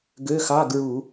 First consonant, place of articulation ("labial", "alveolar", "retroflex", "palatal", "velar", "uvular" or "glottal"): velar